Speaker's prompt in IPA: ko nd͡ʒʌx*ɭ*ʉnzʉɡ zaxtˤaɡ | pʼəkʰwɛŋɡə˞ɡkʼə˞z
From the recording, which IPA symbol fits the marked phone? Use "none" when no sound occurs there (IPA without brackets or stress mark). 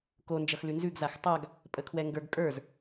l